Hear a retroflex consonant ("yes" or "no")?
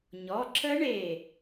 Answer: yes